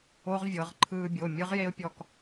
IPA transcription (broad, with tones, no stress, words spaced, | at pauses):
o˦˥ʁvʲɤ˩˧ʁ ǃʰɯː˧bʲo˩˧˩ mʲɯ˦˥ʁje˦˥ʊ̯pʲɔ˧k